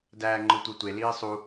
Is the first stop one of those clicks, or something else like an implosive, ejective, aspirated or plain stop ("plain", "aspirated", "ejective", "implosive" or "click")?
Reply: plain